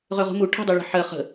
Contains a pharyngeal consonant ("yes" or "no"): yes